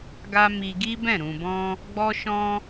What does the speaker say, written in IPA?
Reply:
ɡ a˦ m i˧ ɡ i˦ b ɛ̃˦˨ ɾ ũ˨ b ɔ̃˧ | ɡ͡b ɔ˦ ʃ ɔ̃˦

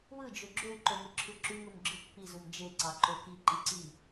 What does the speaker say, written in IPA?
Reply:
w ɯ d͡ʒ ø ɡ͡ǁ ø y̯ ǃ o ŋ o ǁʰ ɯ ǁ y ŋ u m ɡ͡ǁ ɯ pː i z u m d͡ʒ e ǀ ɑ ǃ o k i ǃ i ǀ i

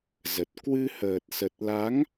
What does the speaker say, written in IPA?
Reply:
z ə˨˩ t̚ k w ɨ˧ h əː˨˩ t̚ s ə˨˩ t̚ l a˨˦ ŋ

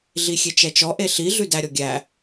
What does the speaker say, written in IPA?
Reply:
ɮ i xʲ e t͡ʃ ɛ t͡ʃ ɔ ʔ e ɬ i ɮ ʉ d æ ɾʲ ɔ ɡʲ æ

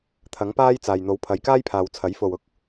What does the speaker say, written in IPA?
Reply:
t̪ʰ ɐ˨˥ ŋ p aː˥ j t͡s aː˨ j n̪ o˨˥ w pʰ ɐ˨˧ j k aː˥ j pʰ aː˨ w t͡sʰ ɐ˨˥ j f o˨ w ʊ˥ k̚

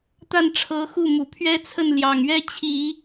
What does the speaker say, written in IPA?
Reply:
t̪ a˥˩ n ʈ͡ʂʰ ɤ˧˥ x u˥˩ m u˨˩ pʰ ɥ ɛ˥ t͡sʰ ə˥˩ n l j ɑ˨˩ ŋ ɥ ɛ˥ t͡ɕʰ i˨˩˦

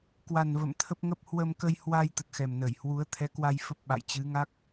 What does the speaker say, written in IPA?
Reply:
k w a˨˩ n v ə̰˧˨ m t̪ʰ ə˦˥ p̚ ŋ ə˦˥ p̚ h w ə˧ m k ə˧ j h w a˧ j t̪ ə˨˩ t̚ x ɛ˨˩ m n ə˧˩ j h w u˨˦ ə̯ t̪ʰ ɛ˨˦ k w a˧ j f ə˦˥ p̚ ɓ a̰˧˨ j t͡ɕ ɨ˨˦ ŋ a˦˥ k̚

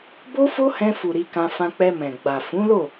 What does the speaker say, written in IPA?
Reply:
b o˦ f o˦ h ɛ̃˧ f u˨ ɾ i˧ k ã˧ f ã˧ k͡p ɛ˧ m ɛ̃˨ ɡ͡b a˨ f ũ˨˦ l o˦˨

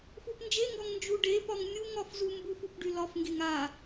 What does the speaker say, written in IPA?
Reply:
f u p n d͡ʒ e ŋ ɡ ɒ ŋ n d͡ʒ u ɖ e p ɒ ŋ mʲ u ŋ ɒ f z u m b u f u p ɖ y l ɒ f ŋ ɡ e ŋ a

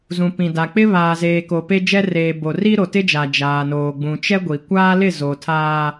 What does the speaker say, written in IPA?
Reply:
z ũ˨ p ĩ˨ d a˨ k͡p ɪ˦ β aː˨ z eː˨ k o˨ p e˦ d͡ʒ ɛ˦ r eː˨ b o˨ r i˦ ɾ o˨ t ɪ˦ d͡ʒ a˨ d͡ʒ aː˨ n oː˨ ɡ͡b ũ˨ t͡ʃ ɛ˦ ɡʷ i˨ kʷ aː˦ l ɪ˦˨ z o˨ tʰ aː˦

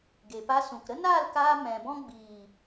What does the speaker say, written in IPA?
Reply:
ɡ e˨ p a˧ s ũ˨ k ɾ ə˦ n aː˦˨ l k aː˧ m ɛ̃˨ b ɔ̃˦ ɡ͡b iː˨

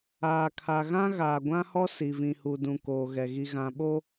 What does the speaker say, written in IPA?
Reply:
aː˨ kʰ a˨ ɣ ã˦ ɣ aː˨ ɡʷ ã˦ h ɔ˦ s i˨ v ĩ˨ h u˨ d ũ˨ k oː˨ ɣ ɛ˨ ɣ i˨ ɣ ã˨ ɓ o˦

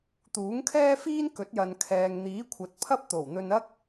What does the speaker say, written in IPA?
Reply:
t̪ uː˨˥ ŋ kʰ ɛː˥ f iː˥ n k ɵ˨˥ t̚ j ɐ˨ n kʰ ɛː˨ ŋ n̪ iː˨˥ kʷʰ ɐ˨˥ t̚ pʰ ɐ˥ p̚ t̪ o˨˩ w n̪ ɵ˧ n ɐ˥ k̚

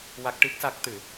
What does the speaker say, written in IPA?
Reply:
w a˦˥ k̚ ʈ i˦˥ k̚ s a˦˥ k̚ t̪ ɨ˨˩˦

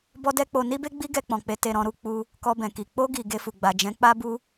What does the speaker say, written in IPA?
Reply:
b ɔ˦ d ɛ˦ k͡p o˧ n i˦ b e˦ ɡ͡b i˦ ɡ ɛ˧ k͡p ɔ̃˨ k͡p e˨˦ t e˧ ɾ ɔ̃˧ ɾ u˦ k͡p u˧ | k ɔ˧ b ɛ̃˨ k i˨ k͡p o˧ ɡ i˨ ɡ e˧ f u˨ ɡ͡b a˨ d͡ʒ ɛ̃˨˦ k͡p a˦ b u˦

